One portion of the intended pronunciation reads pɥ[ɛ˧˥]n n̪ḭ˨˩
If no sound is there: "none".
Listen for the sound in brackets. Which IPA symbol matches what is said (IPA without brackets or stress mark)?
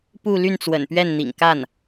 ɛ˥˩